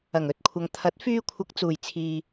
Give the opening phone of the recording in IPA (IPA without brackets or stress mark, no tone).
ɐ